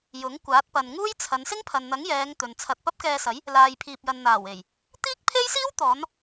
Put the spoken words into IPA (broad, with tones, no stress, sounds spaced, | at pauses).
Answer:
j ʊ˨˥ ŋ kʷ aː˨˥ t̚ p ɐ˨ n ŋ uː˥ j t͡sʰ ɐ˨˧ n s ɪ˥ ŋ pʰ ɐ˨ n n̪ ɐ˨˥ ŋ j ɛː˨˧ ŋ t̪ ɵ˨ n t͡sʰ ɐ˧ t̚ p ɐ˥ p̚ k ɛː˧ s ɐ˨˥ j | l aː˨ j pʰ iː˨ p̚ j ɐ˨ n n̪ aː˨˩ w e˨˩ j | t̪ iː˥ k̚ pʰ e˥ j s iː˥ w t̪ ɔː˨˧ n